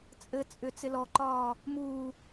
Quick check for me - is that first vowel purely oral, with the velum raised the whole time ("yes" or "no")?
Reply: yes